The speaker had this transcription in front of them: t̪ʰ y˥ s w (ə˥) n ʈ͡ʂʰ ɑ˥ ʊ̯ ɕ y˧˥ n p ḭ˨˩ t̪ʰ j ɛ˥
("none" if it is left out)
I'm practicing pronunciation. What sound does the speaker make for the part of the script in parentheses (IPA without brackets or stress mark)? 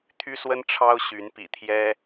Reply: ə˥